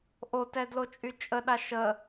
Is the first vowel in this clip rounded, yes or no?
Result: yes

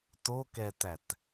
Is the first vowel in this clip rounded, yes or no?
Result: yes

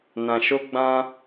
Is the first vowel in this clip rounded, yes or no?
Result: no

